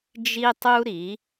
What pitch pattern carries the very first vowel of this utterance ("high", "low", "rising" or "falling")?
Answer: high